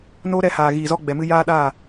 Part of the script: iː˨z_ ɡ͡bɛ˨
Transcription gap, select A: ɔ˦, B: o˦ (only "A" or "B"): A